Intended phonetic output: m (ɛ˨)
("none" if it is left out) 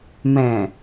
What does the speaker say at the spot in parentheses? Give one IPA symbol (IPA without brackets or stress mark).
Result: ɛ̃˨